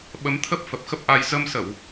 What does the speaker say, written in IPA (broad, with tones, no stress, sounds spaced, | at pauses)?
ɓ ə˨˦ m t̪ʰ ə˦˥ p̚ f ə˨˩ p̚ x ə˦˥ p̚ ʔ a˧ j z ə˧ m s ə˧˩˨ w